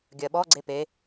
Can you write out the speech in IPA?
ɡʲɜɓɔ ɡ͡ǀepe

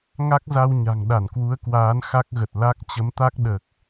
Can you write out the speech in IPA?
ŋa˦˥k̚za˧w ɲa̤˨˩ŋ ɗa˧˩nkwu˨˦ə̯kwaː˨˦n xa˦˥k̚ɣə˨˩t̚ la˦˥k̚ t͡ɕə˨˦mt̪a˦˥k̚ɗəː˨˩k̚

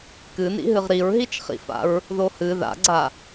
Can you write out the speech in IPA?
kɨnḭɦɨʁ ɾiɹɦit͡ʃχḭfa̰ɹ | ðohɨ ða̰ɡ͡ǀa

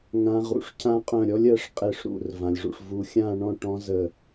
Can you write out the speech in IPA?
ŋã˦˥ʁṵ˦˨ʂ cʰã˦˥qʼœ̃˦˨ɾʲɔ˦˥lʲ ɜ˦˥ʂqʼe˦˨ʂ ɾṵ˦˨rvã˨lʲʐṵ˨ʂ vu˨xʲã˦˨ɳɔ̃˦˨ ʈɔ̃˦˥zə˦˨

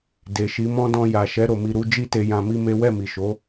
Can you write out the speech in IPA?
de˨ʃi˨˦mɔ̃˦ dɔ̃˧ja˨ʃɛ˨˦ ɾo˧mi˧ɾu˦ d͡ʒi˦te˧ jã˧mi˦ me˦ wɛ˦˨mi˨ʃo˨˦

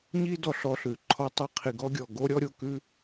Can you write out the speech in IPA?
ɲi˧ dɔ˧ɬɔ˧ɬʉ˨ǃʰɔ˧ tˤi˧ qʰi˨ɡɔ˧ ɡʲɔ˨ɡo˦ɾʲɔ˦ ɾʲo˧kʉ˦

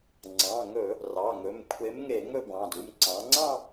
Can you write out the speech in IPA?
ŋ͡ǀɑ̃˩˧˩ŋɵ˧˩˧ | rɑ˩˧˩ŋɵ˩˧˩m kʷʰe˨˥mŋe˧˩˧ ŋɵ˥˧bɑ̃˩˧˩du˩˧˩m ǀɑ̃˩˧ŋ͡ǀɑ̃˥˧

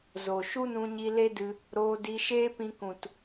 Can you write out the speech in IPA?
zo˨ ʃu˦nũ˧ɲi˧ le˦dɨ˧ | ɾoː˧di˧ ʃeː˦pĩ˧ kũ˨t

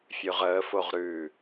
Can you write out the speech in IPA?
fʲʉʁəːfoʁ ɾʉː

